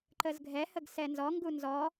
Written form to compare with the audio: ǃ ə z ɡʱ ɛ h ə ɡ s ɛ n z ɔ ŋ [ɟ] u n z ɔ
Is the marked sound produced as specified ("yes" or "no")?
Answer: no